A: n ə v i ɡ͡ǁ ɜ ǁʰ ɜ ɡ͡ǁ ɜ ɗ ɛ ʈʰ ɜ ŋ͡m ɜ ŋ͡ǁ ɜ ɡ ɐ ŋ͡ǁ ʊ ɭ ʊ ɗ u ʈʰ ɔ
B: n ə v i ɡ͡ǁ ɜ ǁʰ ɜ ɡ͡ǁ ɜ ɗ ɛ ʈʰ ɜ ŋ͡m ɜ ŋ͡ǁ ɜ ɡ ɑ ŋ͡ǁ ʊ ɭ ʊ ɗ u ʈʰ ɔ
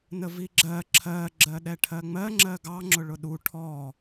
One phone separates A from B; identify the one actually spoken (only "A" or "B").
B